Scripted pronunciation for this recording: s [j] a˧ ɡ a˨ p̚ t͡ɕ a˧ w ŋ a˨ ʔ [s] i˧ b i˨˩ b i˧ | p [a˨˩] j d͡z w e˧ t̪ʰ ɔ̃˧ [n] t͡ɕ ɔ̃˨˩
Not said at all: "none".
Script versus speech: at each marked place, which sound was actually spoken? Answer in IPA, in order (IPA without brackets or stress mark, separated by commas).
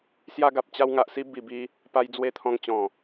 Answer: j, s, a˧, ŋ